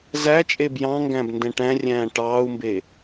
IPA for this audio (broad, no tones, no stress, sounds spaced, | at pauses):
z æ t͡ʃʼ e b j ɑ̃ ŋ ɡ æ̃ b n d ɛ̃ ʈ æ̃ rʲ æ̃ː ʈ ɑː u̯ m b e